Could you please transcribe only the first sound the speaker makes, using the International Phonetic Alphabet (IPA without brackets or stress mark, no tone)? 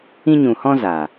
ĩ